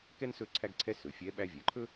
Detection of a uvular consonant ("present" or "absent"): absent